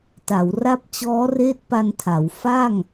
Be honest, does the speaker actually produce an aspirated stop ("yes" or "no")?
yes